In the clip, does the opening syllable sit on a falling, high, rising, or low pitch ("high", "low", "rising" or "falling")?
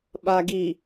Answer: low